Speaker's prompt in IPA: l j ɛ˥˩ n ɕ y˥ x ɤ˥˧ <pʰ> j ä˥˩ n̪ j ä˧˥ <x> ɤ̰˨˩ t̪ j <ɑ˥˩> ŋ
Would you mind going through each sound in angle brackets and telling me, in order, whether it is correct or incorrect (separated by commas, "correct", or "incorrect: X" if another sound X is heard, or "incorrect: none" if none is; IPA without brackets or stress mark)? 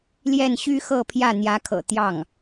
correct, incorrect: kʰ, correct